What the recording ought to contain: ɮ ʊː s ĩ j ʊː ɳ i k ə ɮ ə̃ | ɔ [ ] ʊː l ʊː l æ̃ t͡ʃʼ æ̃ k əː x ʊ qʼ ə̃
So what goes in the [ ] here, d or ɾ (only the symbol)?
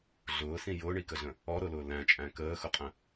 ɾ